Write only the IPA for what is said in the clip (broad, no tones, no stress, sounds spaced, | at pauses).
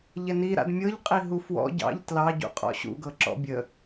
ʎ ɛ n i ɾ a̰ d mʲ ɤ ʎ qʼ i ɦ u f w ɔ̰ ɟ ɑ̰ ʎ t l ɑ ɟ ṵ qʼ ɔ̰ ɕ ṵ ɡ ɤ ǁ ɔ̰ bʲ ə